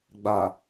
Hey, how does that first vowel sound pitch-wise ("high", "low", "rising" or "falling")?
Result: low